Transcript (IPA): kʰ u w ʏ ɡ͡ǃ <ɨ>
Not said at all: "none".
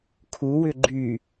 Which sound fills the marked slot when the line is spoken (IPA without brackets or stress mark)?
y